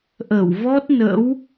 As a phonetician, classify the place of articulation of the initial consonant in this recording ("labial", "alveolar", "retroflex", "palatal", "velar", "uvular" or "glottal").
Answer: glottal